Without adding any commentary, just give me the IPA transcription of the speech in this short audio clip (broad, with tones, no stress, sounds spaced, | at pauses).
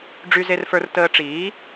ɖ͡ʐ y˨ z e˨ r f ə˞˨ r t əː˨ ʈ͡ʂ iː˩˥